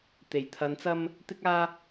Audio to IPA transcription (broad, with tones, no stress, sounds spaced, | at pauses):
t̪ e˨˩ j t̪ʰ ɐ˧ n t͡s ɐ˥ m | t̪ ɪ˥ k̚ aː˥